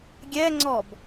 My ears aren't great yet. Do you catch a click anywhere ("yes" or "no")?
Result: yes